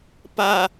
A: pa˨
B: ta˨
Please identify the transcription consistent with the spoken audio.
A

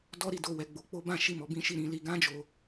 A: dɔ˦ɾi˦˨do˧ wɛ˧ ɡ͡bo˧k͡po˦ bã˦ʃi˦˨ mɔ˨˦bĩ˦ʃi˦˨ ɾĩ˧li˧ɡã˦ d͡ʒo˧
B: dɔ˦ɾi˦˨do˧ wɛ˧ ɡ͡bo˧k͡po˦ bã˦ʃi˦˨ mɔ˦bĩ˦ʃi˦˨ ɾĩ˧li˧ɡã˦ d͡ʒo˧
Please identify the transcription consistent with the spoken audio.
A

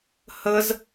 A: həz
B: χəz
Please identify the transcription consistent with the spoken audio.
A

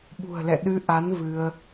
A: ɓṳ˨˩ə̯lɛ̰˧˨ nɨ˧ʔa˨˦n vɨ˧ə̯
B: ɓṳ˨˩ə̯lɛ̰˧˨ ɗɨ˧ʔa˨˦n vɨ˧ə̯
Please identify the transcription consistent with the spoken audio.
B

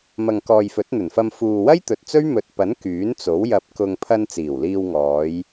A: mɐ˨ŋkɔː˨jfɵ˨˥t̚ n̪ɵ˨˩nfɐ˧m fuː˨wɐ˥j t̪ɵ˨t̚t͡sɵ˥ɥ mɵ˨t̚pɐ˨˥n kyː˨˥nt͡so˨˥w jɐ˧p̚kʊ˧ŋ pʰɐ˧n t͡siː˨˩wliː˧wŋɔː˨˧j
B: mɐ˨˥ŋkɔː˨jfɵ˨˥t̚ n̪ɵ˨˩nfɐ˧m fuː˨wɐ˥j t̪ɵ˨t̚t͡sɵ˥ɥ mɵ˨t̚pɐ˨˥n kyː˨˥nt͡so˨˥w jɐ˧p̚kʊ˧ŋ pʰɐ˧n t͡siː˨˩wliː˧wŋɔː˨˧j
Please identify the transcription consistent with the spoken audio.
A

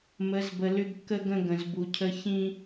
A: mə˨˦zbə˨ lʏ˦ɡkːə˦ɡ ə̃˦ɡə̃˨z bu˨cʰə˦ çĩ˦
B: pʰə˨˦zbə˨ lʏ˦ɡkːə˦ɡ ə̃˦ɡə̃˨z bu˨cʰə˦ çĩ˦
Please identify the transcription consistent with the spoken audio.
A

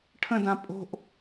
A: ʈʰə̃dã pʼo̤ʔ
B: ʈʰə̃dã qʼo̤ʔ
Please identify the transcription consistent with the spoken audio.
A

